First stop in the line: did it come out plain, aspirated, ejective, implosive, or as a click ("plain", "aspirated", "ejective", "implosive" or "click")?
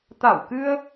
plain